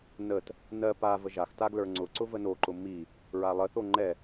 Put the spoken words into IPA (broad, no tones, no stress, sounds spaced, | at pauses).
n ə t | n ɜ p a v ə ʒ a x t a ɡ l ə˞ ŋ͡ǀ ʊ ǀ ʊ v ə n o ǃ ʊ m i | ɹ a lˠ ə θ o ŋ͡ǃ ɛ